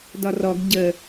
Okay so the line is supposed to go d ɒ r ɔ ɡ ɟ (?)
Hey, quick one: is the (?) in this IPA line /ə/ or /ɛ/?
ə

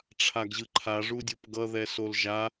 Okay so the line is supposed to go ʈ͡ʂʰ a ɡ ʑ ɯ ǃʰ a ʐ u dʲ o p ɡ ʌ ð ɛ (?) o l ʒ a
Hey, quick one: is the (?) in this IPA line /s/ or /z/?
s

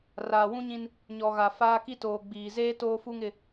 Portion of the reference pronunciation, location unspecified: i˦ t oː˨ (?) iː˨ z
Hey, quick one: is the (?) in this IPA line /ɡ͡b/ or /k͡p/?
ɡ͡b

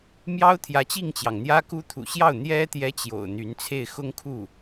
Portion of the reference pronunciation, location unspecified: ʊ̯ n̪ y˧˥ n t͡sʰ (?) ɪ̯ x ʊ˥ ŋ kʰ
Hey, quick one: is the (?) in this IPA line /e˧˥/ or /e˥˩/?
e˥˩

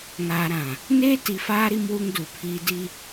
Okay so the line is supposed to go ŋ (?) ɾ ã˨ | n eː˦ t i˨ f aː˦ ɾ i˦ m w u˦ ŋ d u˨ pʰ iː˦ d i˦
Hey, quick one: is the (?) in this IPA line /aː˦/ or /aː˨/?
aː˨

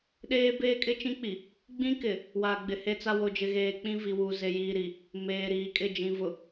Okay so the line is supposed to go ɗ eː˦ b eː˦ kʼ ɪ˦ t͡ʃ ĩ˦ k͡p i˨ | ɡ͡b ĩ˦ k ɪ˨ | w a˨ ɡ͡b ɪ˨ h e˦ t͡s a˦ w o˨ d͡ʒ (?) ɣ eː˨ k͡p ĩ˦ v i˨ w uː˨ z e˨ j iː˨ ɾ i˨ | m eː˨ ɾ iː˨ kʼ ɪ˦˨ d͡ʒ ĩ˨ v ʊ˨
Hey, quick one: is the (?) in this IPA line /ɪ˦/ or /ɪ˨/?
ɪ˨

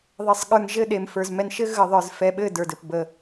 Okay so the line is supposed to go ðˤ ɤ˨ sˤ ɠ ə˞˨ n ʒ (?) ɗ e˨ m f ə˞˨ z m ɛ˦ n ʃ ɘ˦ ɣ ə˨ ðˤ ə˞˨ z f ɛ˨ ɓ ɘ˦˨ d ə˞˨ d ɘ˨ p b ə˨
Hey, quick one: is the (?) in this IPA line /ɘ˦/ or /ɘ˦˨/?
ɘ˦˨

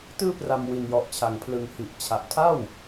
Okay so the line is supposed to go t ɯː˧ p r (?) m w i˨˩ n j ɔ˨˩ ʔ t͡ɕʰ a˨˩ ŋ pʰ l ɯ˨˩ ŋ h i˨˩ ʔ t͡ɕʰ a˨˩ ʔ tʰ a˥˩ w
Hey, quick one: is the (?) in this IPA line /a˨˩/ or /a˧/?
a˨˩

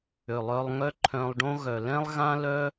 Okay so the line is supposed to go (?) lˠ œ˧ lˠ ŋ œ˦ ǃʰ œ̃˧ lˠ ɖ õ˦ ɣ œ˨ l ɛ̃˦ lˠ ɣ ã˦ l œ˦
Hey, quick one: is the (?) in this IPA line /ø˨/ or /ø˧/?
ø˨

